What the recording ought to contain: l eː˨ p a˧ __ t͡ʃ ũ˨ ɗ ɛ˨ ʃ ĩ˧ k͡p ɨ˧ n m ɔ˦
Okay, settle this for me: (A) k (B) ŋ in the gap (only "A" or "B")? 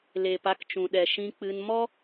A